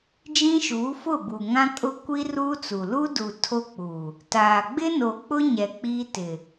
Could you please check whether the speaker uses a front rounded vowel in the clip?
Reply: no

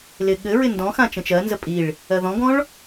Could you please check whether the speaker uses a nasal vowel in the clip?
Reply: yes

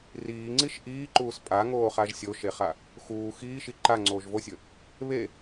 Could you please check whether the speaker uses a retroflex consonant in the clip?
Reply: no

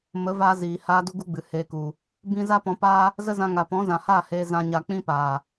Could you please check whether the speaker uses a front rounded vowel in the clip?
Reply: no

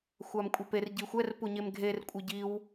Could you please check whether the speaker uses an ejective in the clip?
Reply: yes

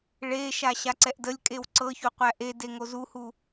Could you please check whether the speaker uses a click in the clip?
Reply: yes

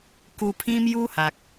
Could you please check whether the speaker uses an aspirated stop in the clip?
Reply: yes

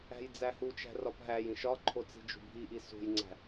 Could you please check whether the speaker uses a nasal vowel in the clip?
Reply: yes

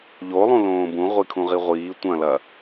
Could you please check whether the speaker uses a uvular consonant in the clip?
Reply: yes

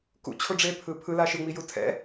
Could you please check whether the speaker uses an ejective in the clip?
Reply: no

